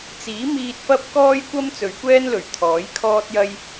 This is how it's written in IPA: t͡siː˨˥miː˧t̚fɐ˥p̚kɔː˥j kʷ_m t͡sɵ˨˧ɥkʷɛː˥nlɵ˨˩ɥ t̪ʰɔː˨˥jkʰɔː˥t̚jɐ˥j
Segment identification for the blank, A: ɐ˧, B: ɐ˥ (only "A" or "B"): B